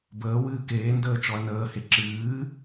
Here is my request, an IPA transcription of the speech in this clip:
b əː w ɨː k eː n d əː t͡ʃ ɔ ɐ̯ n əː h e ǁ ɨː

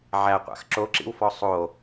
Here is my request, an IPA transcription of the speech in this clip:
ʕ æ qʷ a̰ x ǁ o ǁ ḭ w f ɔ sˤ o

